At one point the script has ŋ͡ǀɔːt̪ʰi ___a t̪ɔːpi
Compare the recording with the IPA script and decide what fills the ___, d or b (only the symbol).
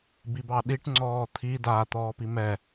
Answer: d